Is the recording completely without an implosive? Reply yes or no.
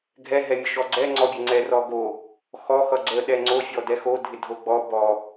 no